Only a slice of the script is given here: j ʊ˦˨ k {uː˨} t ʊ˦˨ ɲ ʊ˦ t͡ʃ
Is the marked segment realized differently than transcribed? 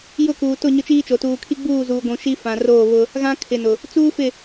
no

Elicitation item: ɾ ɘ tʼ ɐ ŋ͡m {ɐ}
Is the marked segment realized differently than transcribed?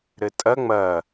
no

